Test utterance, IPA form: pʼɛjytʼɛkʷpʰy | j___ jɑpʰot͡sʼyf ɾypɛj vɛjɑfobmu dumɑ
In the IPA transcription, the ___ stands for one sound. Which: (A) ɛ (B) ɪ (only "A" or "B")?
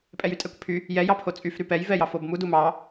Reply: A